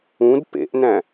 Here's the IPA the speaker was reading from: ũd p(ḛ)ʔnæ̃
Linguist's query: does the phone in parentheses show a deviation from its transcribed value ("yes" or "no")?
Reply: no